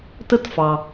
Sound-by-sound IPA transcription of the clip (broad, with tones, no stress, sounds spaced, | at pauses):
t ə˥ t f ɑ˩